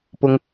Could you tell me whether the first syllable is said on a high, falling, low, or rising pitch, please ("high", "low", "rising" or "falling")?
low